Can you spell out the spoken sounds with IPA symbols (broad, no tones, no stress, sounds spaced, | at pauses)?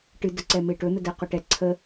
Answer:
ʈ ɨ d ə ǀ ɛ m e ʈ ɵ n̪ ə d ɛ q ɵ ʈ ɛ ǀʰ ə